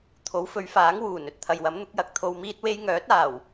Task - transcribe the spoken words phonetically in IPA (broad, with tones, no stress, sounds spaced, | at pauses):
t̪ʰ o˨˥ w f ɵ˨˧ ɥ f aː˨˥ ŋ w uː˨˩ n ɵ˨ t̚ t̪ʰ ɐ˨ j w ɐ˨˥ m n̪ ʊ˨˥ k̚ j ɐ˨˥ k̚ t̪ʰ o˧ w m iː˥ t̚ w e˥ j ŋ œː˨˥ t̚ aː˨˩ w